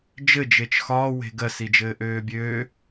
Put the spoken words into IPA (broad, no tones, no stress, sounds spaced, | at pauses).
d͡ʒ ɘ d͡ʒ e t͡ʃ x ɒː w e̤ ɡ ɜ s i d͡ʒ ɘː ʔ øː bʲ øː